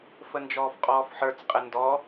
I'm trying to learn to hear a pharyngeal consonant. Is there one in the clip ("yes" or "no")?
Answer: yes